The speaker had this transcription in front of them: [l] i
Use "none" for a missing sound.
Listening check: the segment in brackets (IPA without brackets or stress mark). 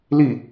l